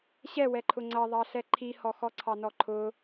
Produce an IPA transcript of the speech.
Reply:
ɕɛwɛǃʰʊ ŋ͡ǀʌðˤɑɬɛ ǃʰihɔxɔ ǀʰɑnɔǃʰʊ

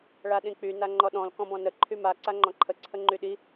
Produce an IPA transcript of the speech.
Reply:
ɭaɗĩk͡py naŋ͡ǃɔɗɔ̃l kɔ̃bɔ̃nə ǃʰyma ǀaŋ͡ǃɔ̃ǃʰə ǀʰəŋ͡ǃyɗi

